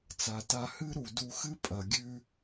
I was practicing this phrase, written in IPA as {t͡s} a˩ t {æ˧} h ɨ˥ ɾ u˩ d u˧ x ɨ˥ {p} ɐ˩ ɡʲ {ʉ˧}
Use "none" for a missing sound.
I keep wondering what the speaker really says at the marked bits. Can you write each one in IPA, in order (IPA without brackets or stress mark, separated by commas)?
t͡s, a˧, pʼ, ʉ˧